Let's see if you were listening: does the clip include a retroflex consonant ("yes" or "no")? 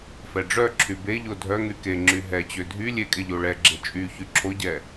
yes